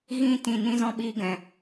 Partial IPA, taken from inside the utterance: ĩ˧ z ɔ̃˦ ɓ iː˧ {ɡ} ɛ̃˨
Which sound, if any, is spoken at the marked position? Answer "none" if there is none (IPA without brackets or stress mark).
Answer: ɡ